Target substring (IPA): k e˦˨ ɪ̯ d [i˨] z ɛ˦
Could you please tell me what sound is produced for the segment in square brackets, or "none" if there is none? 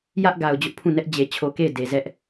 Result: e˨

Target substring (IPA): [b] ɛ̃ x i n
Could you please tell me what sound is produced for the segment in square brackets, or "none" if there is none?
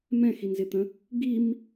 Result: m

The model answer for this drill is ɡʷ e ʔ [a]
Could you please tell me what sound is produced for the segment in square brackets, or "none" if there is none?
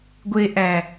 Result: æ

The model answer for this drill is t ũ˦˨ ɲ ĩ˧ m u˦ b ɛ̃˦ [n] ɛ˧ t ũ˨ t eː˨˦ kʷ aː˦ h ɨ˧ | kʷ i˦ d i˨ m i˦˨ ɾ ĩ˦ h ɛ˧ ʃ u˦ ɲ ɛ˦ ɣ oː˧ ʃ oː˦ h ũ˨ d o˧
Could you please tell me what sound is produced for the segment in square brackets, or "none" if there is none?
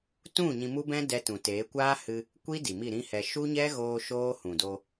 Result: d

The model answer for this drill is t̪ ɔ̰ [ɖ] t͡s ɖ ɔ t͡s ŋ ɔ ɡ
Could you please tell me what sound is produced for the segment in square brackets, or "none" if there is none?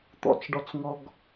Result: none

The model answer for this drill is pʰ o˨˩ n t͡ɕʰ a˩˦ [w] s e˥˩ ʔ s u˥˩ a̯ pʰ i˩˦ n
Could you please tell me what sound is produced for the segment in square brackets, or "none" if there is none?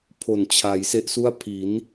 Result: j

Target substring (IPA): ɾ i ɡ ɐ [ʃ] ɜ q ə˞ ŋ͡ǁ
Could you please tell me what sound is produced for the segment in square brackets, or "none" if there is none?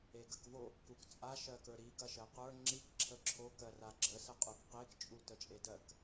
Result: ʃ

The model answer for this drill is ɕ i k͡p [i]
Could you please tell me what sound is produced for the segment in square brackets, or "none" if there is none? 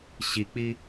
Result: i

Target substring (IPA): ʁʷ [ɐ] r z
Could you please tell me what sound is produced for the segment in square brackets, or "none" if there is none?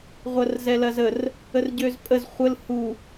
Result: ɐ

